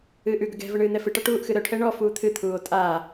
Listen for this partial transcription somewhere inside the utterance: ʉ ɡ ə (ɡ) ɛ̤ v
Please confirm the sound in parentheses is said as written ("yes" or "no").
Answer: yes